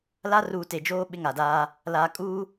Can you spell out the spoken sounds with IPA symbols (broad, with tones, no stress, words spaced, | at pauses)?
la˦ruː˨te˨d͡ʒoː˦ ɓɪ˦ŋa˨daː˦ | laː˨kʼuː˦